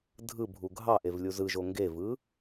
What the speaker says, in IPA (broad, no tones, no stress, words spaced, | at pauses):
dʱɯbʱu ɡʱɑʔev lʲuzɯʒo ŋɡevɯ